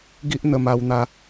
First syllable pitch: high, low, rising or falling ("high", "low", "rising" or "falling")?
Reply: high